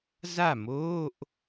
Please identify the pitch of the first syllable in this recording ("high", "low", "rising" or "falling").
falling